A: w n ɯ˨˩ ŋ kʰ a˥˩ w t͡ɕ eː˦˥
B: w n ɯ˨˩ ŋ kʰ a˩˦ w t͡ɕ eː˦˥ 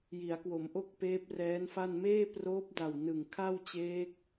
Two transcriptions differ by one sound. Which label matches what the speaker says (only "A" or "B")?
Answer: A